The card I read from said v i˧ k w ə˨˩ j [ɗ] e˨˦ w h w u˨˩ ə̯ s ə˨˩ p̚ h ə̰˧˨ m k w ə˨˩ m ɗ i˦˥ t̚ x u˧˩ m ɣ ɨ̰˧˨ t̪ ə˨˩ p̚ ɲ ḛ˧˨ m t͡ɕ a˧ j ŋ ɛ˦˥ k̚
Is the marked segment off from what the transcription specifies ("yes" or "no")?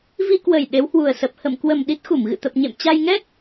no